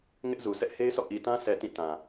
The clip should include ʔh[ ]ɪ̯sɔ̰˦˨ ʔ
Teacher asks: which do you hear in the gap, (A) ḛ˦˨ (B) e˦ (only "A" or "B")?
B